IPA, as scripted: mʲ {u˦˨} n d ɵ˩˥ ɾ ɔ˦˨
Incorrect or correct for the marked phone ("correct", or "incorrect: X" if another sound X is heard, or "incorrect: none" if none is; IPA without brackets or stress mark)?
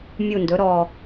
correct